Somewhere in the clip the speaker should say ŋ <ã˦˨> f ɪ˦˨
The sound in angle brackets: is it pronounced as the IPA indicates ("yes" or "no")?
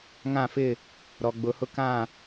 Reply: yes